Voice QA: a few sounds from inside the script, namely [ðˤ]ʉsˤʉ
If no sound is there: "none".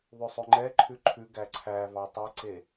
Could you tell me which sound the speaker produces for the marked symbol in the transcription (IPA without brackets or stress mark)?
ðˤ